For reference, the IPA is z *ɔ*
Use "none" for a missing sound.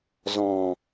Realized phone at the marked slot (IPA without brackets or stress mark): ɔ̃